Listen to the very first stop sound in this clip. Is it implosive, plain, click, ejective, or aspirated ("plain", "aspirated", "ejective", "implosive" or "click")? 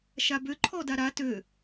plain